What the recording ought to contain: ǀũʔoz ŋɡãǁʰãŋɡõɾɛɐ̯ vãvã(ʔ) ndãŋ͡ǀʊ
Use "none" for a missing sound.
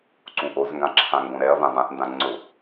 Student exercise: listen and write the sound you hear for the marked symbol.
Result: ʔ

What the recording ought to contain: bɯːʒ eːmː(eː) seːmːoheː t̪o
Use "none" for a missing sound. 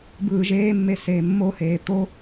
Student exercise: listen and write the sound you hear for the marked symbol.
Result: e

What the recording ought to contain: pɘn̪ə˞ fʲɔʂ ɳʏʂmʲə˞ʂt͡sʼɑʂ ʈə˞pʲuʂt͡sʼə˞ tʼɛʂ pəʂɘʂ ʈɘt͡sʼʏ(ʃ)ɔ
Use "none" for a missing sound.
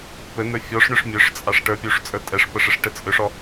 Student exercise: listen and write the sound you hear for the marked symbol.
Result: ʂ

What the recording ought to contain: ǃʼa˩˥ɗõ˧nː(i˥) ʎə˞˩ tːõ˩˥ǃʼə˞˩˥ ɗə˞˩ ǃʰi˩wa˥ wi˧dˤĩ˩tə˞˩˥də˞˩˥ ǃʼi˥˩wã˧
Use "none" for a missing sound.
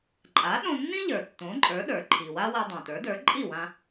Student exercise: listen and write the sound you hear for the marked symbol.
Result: ĩ˥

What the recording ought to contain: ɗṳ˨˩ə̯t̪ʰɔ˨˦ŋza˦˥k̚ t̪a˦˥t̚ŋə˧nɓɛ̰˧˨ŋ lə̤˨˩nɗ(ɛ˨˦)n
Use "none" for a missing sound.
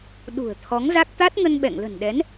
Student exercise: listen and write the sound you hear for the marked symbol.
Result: ɛ˨˦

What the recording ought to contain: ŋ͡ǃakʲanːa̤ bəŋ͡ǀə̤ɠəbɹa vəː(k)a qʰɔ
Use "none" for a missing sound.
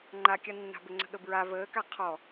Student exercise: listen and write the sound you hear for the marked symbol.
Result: k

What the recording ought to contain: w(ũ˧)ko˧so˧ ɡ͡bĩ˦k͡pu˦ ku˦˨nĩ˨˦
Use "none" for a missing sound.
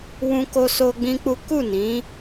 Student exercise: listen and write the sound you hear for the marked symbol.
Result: ũ˧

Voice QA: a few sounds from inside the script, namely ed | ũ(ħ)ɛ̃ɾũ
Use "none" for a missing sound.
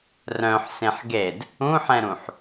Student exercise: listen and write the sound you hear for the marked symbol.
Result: ħ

